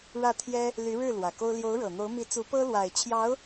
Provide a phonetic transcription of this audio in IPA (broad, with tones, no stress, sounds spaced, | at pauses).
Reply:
ɻ ä˥˩ t̪ʰ j ɛ˥ | l y˧˥ ɻ ɻ̩˥˩ l w ä˨˩ k o˥ ʊ̯ l j o˧˥ ʊ̯ ɻ ɤ˨˩ n̪ o˧˥ ʊ̯ m i˧˥ t͡s u˧˥ p ɤ˥ l w a˨˩ ɪ̯ t͡ɕʰ j ɑ˧˥ ʊ̯